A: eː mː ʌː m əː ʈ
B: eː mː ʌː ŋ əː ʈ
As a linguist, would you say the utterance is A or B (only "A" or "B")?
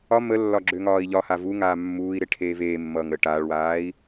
B